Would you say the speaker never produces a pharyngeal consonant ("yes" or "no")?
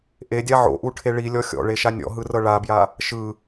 no